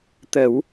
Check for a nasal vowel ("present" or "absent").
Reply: absent